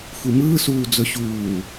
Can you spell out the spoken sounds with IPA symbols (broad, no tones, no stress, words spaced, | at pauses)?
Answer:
xʷimɯːsuː d͡zɵɕuː